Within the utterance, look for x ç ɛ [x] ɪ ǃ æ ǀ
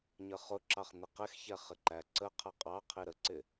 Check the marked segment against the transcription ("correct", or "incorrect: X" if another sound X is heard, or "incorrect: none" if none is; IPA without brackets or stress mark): incorrect: χ